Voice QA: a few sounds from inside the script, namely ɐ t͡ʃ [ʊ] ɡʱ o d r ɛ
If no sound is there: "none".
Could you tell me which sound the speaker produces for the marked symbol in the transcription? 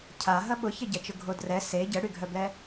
ʊ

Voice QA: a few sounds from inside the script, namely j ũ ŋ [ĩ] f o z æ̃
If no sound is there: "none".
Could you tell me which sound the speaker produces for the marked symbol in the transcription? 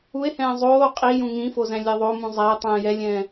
ĩ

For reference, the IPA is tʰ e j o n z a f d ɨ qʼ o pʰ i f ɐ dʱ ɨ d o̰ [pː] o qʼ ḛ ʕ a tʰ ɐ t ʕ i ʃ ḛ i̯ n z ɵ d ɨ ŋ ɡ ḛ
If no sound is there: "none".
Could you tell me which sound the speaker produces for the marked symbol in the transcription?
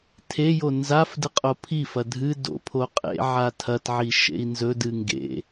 pʰ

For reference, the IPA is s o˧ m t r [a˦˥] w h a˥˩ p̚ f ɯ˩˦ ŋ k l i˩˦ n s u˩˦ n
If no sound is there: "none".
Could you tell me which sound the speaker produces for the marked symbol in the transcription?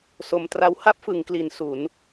a˦˥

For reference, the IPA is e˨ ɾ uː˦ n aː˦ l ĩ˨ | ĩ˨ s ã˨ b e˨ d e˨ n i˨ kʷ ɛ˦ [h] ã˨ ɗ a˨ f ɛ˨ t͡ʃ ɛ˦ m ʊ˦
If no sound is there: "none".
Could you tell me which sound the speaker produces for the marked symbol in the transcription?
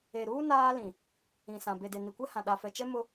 h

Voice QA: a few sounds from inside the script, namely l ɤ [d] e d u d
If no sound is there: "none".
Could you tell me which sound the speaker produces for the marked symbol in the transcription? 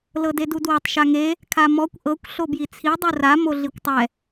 d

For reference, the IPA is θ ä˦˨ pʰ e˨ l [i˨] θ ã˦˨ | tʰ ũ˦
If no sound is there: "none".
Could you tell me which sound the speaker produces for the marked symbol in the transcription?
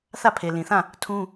ĩ˨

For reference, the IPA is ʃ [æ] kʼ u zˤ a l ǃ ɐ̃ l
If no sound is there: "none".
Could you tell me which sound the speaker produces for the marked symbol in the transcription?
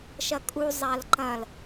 ɐ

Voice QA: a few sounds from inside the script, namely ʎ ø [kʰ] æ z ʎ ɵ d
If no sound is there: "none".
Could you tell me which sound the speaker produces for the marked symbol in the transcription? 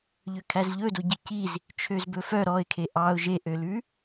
kʰ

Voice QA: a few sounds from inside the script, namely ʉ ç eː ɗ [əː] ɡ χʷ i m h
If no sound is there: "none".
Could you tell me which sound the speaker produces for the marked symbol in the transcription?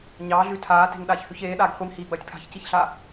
aː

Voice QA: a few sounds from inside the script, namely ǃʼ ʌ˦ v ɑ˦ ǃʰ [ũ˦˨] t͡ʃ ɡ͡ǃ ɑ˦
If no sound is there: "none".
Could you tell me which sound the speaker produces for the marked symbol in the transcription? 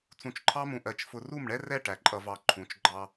ũ˨˦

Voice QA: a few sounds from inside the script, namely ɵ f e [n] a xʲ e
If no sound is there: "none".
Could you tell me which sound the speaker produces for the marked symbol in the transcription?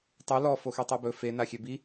n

